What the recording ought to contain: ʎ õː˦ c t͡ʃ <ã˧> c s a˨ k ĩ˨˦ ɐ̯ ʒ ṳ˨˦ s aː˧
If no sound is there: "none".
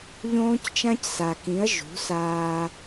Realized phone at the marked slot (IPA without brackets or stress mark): ã˦